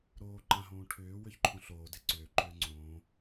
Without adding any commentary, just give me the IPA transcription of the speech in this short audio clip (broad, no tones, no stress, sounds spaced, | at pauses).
ɾ oː ǃ ã ɦ õː ʈʰ ʏː w ʏ ç ǃʰ õ ɬ oː d e ǀ ʏː ǃ ʏː ŋ͡ǀ õː